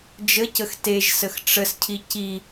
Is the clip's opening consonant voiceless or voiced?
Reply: voiced